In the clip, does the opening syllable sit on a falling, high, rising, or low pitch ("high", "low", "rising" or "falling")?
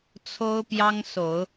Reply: high